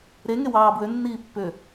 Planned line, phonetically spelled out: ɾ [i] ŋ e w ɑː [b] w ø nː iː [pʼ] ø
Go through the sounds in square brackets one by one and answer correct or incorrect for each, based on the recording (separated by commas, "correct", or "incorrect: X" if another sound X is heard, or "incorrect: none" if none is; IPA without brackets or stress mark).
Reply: incorrect: e, correct, incorrect: pː